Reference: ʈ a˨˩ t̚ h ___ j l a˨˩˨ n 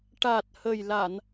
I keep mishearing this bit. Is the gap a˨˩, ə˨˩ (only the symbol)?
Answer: ə˨˩